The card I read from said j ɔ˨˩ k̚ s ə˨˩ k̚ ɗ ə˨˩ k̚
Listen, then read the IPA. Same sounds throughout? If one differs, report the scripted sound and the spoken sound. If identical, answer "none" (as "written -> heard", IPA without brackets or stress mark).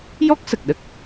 ɔ˨˩ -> ɔ˦˥